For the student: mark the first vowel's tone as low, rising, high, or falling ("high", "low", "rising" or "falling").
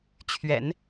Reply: low